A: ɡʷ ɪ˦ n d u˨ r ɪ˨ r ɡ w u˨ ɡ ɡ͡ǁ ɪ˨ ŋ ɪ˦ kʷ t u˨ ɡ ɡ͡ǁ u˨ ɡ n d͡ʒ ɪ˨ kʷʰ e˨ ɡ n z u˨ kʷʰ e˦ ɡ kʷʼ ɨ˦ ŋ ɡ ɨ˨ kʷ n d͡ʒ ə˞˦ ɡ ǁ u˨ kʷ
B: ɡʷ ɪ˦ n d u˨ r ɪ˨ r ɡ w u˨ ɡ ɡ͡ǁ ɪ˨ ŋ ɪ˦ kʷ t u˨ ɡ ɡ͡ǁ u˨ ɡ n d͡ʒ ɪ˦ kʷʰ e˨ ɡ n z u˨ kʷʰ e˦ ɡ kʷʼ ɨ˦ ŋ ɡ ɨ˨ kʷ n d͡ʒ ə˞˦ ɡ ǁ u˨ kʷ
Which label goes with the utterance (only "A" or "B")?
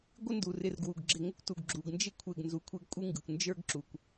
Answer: B